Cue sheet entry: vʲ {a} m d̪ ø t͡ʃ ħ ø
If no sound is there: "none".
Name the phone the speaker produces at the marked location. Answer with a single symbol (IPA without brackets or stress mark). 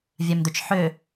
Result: a